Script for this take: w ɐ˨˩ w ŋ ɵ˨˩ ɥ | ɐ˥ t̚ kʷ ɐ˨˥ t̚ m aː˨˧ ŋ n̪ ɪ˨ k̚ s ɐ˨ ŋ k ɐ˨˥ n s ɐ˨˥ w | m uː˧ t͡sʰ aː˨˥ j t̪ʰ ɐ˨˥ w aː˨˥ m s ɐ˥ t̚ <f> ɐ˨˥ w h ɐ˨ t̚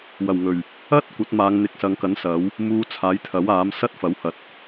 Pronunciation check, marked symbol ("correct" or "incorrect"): correct